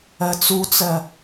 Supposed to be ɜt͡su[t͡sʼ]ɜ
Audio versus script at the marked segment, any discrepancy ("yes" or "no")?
yes